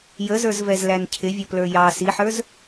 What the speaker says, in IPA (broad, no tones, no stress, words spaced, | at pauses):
jəzə˞zvɛzlæn cʰɪvʲʌplə˞ jɑ siħə˞z